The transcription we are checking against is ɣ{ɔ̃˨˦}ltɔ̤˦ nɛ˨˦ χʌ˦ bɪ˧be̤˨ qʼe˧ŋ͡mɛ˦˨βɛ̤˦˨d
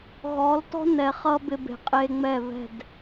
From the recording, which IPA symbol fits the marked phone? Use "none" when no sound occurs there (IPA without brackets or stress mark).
ɔ˨˦